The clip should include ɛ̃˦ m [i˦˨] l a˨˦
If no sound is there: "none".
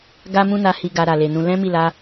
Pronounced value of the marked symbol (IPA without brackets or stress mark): i˦˨